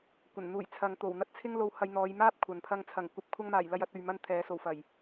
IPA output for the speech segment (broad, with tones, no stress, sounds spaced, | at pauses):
kʷ ɐ˨˩ n n̪ uː˨˩ j t͡sʰ ɐ˨˧ ŋ t̪ o˨˩ w n̪ ɐ˥ t̚ t͡sʰ ɪ˥ ŋ l o˧ w h ɐ˧ j n̪ ɔː˨˧ j m aː˥ p̚ kʷʰ ɐ˨ n pʰ ɐ˧ ŋ t͡sʰ ɐ˨˩ ŋ kʷ ɐ˨˥ p̚ kʷʰ ɐ˧ ŋ m aː˨˩ j l ɐ˧ j ɐ˧ t̚ ɵ˨ ɥ m ɐ˧ n t̪ʰ ɛː˨˥ s o˨˩ w f ɐ˨˩ j